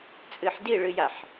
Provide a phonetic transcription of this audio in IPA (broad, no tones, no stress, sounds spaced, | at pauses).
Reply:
t͡sʼ ɨ ħ d i ɭ ɨ j a ħ